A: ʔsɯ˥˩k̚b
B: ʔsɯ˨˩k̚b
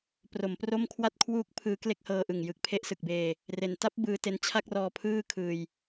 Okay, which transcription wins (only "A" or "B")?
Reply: B